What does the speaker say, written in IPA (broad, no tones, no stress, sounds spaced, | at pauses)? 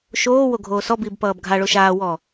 ʃ oː w o ɡʱ oː s ɔ b iː b p ʌː b ɡʱ a ɭ o ʃ aː w ɔ